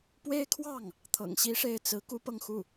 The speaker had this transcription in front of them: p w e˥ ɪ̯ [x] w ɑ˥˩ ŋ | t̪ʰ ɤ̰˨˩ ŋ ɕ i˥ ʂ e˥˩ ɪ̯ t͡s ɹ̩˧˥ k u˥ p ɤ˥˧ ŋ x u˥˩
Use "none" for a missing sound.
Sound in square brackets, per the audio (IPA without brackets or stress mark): kʰ